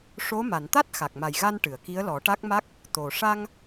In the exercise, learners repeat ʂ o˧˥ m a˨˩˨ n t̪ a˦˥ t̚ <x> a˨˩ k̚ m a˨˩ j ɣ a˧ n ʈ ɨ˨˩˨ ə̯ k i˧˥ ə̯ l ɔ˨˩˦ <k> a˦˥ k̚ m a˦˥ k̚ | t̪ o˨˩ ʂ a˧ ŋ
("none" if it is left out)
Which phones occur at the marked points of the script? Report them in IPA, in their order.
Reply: x, ʈ

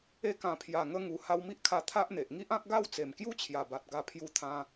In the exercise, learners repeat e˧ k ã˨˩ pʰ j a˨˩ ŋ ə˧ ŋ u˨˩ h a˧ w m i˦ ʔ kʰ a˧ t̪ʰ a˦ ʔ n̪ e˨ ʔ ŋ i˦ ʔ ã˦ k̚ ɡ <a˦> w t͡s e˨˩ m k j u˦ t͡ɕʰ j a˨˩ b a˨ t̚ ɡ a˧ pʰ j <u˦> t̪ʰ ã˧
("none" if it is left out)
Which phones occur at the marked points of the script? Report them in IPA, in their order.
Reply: a˥˧, u˧

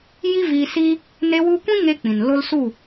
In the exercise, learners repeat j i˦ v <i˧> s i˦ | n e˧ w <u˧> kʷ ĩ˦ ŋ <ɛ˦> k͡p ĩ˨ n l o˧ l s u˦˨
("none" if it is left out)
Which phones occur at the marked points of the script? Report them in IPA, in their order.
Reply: i˧, u˧, e˦

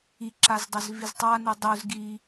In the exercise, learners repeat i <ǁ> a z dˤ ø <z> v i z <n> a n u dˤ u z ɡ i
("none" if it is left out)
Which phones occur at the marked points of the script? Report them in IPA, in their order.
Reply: ǁ, z, tˤ

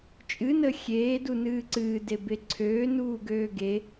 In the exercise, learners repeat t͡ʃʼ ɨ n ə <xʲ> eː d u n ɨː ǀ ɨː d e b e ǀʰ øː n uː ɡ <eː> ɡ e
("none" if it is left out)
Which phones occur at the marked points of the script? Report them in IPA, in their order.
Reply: xʲ, øː

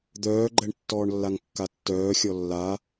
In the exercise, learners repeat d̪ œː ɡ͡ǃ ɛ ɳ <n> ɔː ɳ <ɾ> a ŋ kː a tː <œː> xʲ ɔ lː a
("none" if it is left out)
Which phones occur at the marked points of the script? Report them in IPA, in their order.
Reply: tː, lː, œː

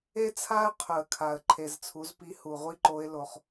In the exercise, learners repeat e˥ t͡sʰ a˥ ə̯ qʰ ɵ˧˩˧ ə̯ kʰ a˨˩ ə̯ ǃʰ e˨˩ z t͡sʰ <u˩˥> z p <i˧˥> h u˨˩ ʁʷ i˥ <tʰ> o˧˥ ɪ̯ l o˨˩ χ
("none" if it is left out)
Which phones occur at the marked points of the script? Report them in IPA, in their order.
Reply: u˩˥, i˧˥, ǃ

